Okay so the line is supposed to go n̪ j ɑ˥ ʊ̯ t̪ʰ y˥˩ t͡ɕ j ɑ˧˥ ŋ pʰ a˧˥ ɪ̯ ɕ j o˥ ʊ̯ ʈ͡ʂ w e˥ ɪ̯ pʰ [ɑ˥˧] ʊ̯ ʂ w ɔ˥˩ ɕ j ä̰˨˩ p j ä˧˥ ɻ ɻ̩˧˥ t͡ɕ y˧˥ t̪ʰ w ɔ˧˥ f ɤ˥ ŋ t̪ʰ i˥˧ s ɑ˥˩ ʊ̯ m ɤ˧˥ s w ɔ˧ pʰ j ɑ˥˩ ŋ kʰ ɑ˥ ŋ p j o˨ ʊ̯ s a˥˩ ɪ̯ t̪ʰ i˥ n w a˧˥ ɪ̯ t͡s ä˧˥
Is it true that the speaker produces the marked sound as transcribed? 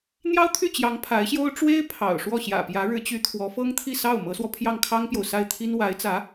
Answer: no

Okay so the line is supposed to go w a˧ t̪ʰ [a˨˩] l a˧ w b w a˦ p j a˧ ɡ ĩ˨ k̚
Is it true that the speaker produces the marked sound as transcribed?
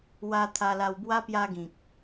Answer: no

